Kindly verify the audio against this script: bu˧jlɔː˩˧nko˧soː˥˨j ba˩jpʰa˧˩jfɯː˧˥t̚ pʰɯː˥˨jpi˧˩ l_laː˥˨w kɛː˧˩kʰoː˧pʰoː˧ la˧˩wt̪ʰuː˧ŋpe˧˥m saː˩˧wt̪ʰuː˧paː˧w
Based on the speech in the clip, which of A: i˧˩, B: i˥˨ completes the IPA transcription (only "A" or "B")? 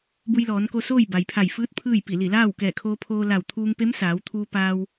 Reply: A